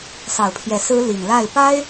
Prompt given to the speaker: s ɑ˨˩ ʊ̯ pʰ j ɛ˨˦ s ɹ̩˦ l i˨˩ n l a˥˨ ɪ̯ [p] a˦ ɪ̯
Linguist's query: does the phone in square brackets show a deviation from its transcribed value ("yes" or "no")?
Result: no